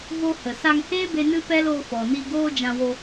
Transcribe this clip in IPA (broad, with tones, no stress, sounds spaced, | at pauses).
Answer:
v o˧ h ə˨ s a˧ ŋ h eː˦ b e˧ n ɨ˦ p ɛ˦ l o˧ f ɔ˨ n i˧ ɡ oː˦ d͡ʒ ã˧ w o˧